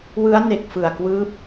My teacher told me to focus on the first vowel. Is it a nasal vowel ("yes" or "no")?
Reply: no